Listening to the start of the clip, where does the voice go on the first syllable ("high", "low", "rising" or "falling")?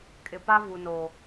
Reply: low